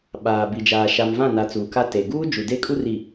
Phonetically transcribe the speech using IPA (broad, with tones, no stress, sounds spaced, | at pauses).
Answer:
ɓ aː˨ b i˨ d͡ʒ aː˨ ʃ a˨ m v ã˦˨ n a˨ t͡s uː˨ k a˦ t e˨ ɡ uː˦ d͡ʒ u˨ d e˦ kʼ u˦ r i˨